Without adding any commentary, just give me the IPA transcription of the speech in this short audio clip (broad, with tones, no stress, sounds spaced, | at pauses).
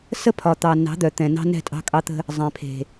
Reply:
s ə˦ pʰ ɒ˨ t̪ ɑ˨ n ɑ̤˨˦ d̪ œ˨ t̪ ɛ̃˨ n ɑ̤˦ n ɛ̤˦˨ tʼ ɑ̤˦ kʼ ɑ˦ t̪ ə̤˦ | zˤ ɛ̃˨ pʰ e̤˨